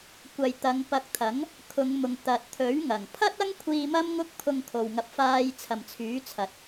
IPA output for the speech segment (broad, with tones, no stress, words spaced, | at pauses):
kʷɐ˨jt̪ɐ˨˧ŋ pɐ˧k̚t̪ʰɐ˨˥ŋ | kʰʊ˨˧ŋmʊ˨ŋt̪ɐ˨t̚ t̪ʰɵ˨˥ɥŋɐ˨˩ŋ pʰɐ˥t̚ɐ˥ŋkʷʰiː˧ mɐ˥mŋʊ˥k̚pʰʊ˧ŋ kʰo˨wŋɐ˧p̚faː˧j t͡sʰɐ˨mt͡sʰyː˨˥t͡sʰɐ˨t̚